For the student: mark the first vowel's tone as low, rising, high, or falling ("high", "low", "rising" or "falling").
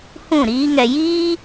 falling